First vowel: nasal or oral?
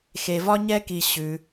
oral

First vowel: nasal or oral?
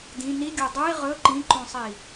nasal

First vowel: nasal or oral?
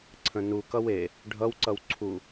nasal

